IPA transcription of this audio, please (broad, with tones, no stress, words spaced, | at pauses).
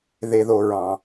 ðe˨ðo˨ɹɑ̃˨